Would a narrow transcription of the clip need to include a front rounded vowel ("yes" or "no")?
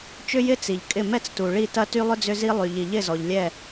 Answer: yes